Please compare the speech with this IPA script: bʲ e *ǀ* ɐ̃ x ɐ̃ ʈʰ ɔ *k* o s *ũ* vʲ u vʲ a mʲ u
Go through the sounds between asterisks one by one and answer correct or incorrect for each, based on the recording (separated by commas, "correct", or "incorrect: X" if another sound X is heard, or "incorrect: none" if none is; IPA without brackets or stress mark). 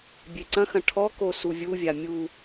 correct, correct, incorrect: u